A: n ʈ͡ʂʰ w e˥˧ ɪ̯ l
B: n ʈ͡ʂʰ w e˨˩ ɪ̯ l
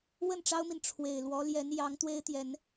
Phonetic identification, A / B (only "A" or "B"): B